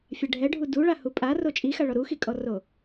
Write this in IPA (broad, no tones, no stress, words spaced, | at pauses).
fʲɛɖʱɛɖʱu duɭahu pʼa rot͡ʃʼixaɭɔ ɾuxikʼɔro